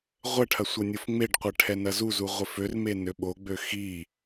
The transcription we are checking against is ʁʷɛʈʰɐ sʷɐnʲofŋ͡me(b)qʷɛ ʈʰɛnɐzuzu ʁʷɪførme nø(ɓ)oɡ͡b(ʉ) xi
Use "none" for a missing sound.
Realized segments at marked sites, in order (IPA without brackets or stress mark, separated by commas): ɖ, ɓ, ø